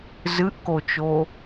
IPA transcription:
zɨʔkot͡ʃo

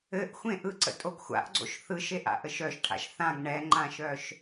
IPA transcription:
ɘʔxʷẽ ʔɯǀə̰tʼoɡ xʷa̰ʔɡ͡ǀo̰ʃ θɯʃeʔa̰ʔəʃ œʃʈʰa̰ʃ θãɡ ɳɛŋ͡ǃãʃœʃ

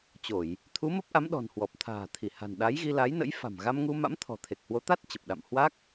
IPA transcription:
t͡ɕo˧˩˨j | t̪ʰu˨˦mə˦˥p̚ʔa˨˦mɗɔ̤˨˩n hwɔ˨˩p̚t̪ʰa̤ː˨˩ t̪ʰi˧˩ha̤˨˩nɗa˨˦jɣi˧ la˨˦jnə̰˧˥jfa̤˨˩m ɣa˧mŋu˧ma̰˧˥m t̪ʰɔ̤˨˩t̪ʰe˨˩k̚hwo˨˦t̪a˦˥t̚ t͡ɕə˨˩p̚ɗa̰˧˨m hwa˦˥k̚

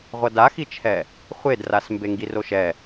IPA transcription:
ʁʷʌdaxit͡ʃʰɛ | χʷedras mbeŋɡiroʃɛ

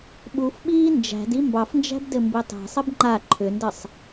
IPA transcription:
ɓufɓiː nd͡ʒæ̤di mbɑfnd͡ʒæ̤bdɘmbi tˤæ̤sˤɘb ŋ͡ǃa ǃʰʏndɘsˤ

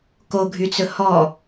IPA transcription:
koɡʱyt͡sɵ hɔ

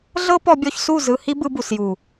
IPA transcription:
ɮɤ˦pɔ˧bʲɔ˧çsu˦˨ zɯ˧hi˦ bɯ˧bu˨sju˨

